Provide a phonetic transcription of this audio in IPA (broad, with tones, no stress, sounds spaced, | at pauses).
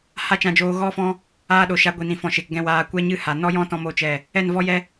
h a˦ t͡ʃ ã˧ d͡ʒ oː˧ ɣ ɔ˦ f ɔ̃˦ | aː˧ ɗ o˨ ʃ a˧ ɡʷ i˨ n ĩ˨ f ɔ̃˨ ʃ e˨ k ɡ ɛ̃˧ w aː˧ kʷ ɛ˦ ɲ ɨ˦ h a˨ n ɔ˦ j ɔ̃˦ t ɔ̃˧ m o˦ t͡ʃ ɛ˦˨ | ɛ˦˨ n v ɔ˦ j ɛ˦